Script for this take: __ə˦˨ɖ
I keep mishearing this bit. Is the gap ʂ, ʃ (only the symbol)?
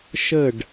ʃ